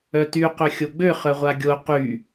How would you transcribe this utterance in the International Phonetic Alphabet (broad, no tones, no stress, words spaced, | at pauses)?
œty qøxʲoɡ͡bø χœʁʷaɡʲo qy